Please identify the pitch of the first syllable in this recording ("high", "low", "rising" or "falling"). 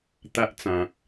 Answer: high